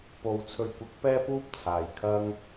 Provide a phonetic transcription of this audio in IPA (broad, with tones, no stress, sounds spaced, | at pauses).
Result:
p o˨ w t͡sʰ ɵ˨ ɥ kʷ ɐ˨˥ k̚ p ɛː˥ p uː˥ p̚ t͡sʰ aː˨ j kʰ ɐ˧ ŋ